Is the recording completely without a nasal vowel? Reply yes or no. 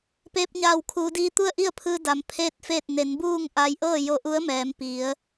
yes